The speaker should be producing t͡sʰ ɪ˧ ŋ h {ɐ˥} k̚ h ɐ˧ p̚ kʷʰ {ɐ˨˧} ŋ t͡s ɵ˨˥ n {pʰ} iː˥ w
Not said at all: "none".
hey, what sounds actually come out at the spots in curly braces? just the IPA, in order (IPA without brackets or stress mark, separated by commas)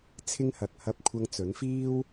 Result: ɐ˨, ɐ˧, f